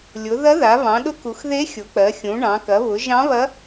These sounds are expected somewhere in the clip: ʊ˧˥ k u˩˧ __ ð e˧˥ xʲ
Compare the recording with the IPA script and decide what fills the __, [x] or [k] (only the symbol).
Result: x